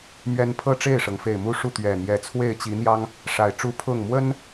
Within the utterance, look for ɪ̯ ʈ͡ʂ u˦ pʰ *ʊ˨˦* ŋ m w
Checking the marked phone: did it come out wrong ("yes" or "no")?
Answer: yes